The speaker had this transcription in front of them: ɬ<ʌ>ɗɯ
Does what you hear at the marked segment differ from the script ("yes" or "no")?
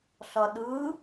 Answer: no